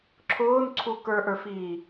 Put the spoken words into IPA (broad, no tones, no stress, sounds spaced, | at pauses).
ǁʰ ʊː n ǀʰ u k ə˞ ʔ ə˞ f iː